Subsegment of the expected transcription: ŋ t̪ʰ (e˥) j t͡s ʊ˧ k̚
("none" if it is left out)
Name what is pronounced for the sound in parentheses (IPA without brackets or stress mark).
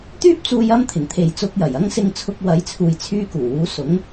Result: e˨